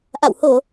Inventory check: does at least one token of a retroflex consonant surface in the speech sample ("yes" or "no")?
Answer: no